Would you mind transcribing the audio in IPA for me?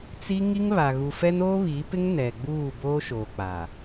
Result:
t͡si˦ ŋi˦ŋβa˨ɣu˨fɛ˦n oː˦βi˨˦pɪ˦ŋ nɛ˨ɡ͡buː˦˨ boː˦ʃoː˨k͡pa˨

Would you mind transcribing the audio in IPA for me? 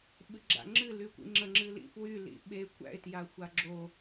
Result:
ɓɨɡ͡ǁa̰ŋ͡ǁɨ lykʷḭŋ͡ǁə ŋ͡ǁɨlḭfwy lḭɓe kʷæ̰ɪ̯ tjaxʷaɡ͡ǁo

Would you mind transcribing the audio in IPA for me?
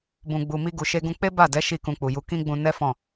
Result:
bũ˨ɡ͡bu˨ mi˧ɡu˨ʃe˧ɡũ˧ k͡pe˦ ba˦˨dɛ˨˦ ʃi˦˨kũ˧k͡pu˨ju˧ kĩ˦ɡ͡bũ˧nɛ˦fɔ̃˦˨

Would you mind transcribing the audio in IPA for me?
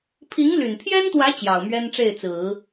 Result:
pʰi˧˥ŋly˨˩npʰjɛ˥nt̪wä˧˥ t͡ɕjɑ˨˩ʊ̯mɥɛ˥nʈ͡ʂe˥˩ɪ̯t͡sɹ̩˨˩˦

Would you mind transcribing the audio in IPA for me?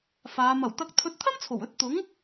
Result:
faː˨˧ mɐ˨˩wt̪ɐ˧k̚ t̪ʰɵ˧t̚t̪ʰɐ˥mt͡sʰo˨˩wɵ˨˥t̚ t̪ʊ˨˥ŋ

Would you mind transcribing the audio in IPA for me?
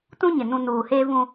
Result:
tũ˦ɲɪ˨ nũ˨ nuː˨heː˦vũ˦

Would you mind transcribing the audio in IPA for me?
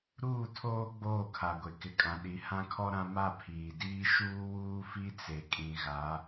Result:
ɾuː˦˨tʰoː˦ ɡ͡boː˦˨kʰa˨ɡʷe˨ kɪ˨kʼã˨ɗi˨˦ hã˦kʰɔ˦ɾã˦ ma˦˨pʰiː˨diː˦ ʃuː˦wuː˦fi˦ t͡se˨kʼĩ˨ ɣa˨˦

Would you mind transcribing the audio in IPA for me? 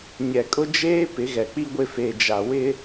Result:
ɲɛ˨kʼʊ˦d͡ʒeː˦ pɪ˨˦ɣɛ˨ k͡pi˦ɡʷɪ˦˨feː˨ d͡ʒa˨ wɪ˦

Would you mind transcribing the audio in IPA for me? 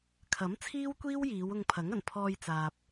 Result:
kʰɐ˨˥m t͡sʰiː˥wkʷiː˥wjiː˨˧w ʊ˧ŋpʰɐ˨˥ŋɐ˨˩n pʰɔː˧jt͡saː˨p̚

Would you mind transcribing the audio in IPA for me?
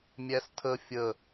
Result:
mʲæstʰə fʲə

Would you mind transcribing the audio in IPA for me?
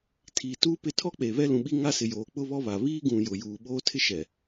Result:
tʰiː˨tuː˦pɪ˦˨ tʰɔ˦k͡pe˨ βɛ˦lũ˨ɓi˦ ŋa˦sɪ˨joː˨ k͡pʊ˦βɔ˦βa˨ βiː˦ɡũ˨ jʊ˨juː˨ɓoː˦ tʰɪ˦ʃɛ˨

